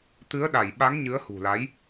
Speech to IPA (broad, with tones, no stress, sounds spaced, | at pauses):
t̪ ɨ˨˦ ə̯ ɗ a˧˩ j ɓ a˨˦ ŋ ɲ ɨ˨˦ ə̯ h ṳ˨˩ l a˨˦ j